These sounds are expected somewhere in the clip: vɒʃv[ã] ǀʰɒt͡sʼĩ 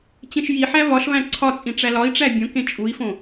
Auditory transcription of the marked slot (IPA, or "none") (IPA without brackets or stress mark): æ̃